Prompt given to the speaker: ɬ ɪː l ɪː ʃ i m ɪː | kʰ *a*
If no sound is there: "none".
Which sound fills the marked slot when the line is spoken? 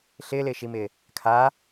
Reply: a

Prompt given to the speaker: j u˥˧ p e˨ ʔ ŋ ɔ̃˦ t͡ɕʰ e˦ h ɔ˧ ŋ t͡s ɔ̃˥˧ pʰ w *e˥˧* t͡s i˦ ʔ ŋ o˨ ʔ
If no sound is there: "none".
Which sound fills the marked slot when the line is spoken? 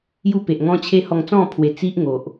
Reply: e˨˩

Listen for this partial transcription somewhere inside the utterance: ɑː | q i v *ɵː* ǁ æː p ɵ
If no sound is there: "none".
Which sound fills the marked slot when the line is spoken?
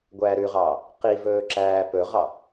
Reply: ɵː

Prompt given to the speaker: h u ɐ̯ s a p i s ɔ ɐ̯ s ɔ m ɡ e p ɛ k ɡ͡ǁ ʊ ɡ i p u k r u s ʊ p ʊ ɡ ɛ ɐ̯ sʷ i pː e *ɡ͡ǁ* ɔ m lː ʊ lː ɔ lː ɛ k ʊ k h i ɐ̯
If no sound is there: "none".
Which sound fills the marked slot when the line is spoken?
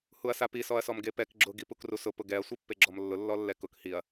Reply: ɡ͡ǁ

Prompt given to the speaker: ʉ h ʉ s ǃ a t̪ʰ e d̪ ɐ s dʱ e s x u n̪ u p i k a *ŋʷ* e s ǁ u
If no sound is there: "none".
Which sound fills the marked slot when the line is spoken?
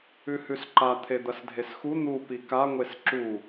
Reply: ŋʷ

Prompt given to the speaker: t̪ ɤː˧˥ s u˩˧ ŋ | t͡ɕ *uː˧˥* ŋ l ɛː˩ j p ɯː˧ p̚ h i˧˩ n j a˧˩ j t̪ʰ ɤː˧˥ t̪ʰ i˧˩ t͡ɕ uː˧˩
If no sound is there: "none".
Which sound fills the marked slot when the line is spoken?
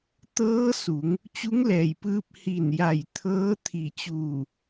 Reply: u˧˥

